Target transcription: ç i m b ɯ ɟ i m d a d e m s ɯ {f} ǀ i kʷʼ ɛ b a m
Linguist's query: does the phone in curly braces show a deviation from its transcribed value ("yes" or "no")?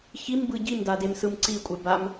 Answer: yes